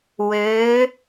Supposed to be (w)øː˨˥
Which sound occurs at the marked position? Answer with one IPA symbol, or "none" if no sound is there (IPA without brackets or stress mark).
w